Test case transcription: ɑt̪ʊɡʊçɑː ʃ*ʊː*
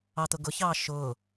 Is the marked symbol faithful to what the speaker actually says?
yes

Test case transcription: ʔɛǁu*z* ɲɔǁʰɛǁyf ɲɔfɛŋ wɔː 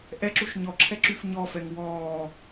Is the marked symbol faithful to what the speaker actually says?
no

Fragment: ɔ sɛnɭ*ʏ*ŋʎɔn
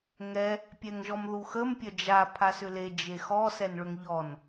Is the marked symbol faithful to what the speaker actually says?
yes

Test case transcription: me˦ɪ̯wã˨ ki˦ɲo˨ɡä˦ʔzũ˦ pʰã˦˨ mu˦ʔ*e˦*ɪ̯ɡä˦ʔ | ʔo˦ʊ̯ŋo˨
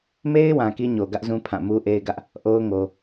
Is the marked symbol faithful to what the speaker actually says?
yes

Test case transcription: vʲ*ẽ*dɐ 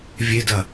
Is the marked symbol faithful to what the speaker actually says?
no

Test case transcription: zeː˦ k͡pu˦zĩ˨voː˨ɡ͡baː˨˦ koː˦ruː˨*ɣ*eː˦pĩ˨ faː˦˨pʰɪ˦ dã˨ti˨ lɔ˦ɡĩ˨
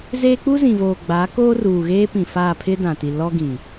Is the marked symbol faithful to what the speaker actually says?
yes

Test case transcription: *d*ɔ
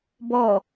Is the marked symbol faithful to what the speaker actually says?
no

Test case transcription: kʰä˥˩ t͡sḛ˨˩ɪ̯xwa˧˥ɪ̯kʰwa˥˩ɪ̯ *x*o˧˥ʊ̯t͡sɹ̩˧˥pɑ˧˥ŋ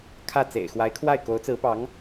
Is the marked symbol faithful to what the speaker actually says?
no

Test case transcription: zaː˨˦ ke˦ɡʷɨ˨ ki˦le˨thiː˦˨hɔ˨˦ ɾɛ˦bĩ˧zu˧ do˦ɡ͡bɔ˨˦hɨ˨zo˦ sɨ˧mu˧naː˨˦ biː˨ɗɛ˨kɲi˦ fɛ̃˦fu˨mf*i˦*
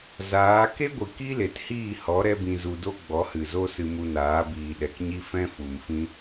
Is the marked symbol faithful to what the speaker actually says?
no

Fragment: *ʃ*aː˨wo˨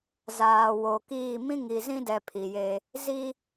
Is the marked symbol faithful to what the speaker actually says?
no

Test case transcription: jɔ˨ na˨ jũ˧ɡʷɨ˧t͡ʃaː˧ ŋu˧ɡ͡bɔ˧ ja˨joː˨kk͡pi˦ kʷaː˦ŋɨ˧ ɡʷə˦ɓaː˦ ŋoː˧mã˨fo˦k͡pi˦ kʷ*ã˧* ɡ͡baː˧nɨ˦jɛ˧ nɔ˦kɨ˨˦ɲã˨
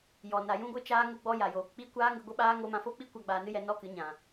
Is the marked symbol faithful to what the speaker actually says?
no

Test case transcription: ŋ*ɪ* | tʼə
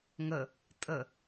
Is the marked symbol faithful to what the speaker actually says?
no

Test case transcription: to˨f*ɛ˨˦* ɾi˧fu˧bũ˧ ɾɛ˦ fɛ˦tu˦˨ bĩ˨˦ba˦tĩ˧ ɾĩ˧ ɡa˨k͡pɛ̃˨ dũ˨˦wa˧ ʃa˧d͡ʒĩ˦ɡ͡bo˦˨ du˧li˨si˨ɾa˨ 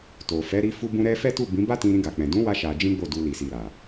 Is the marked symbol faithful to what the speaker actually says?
yes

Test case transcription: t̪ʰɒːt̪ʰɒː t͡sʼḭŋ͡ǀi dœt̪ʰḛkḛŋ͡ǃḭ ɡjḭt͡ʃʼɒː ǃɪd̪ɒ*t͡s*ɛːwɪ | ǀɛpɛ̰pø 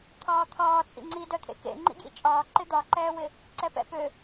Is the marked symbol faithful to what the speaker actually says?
no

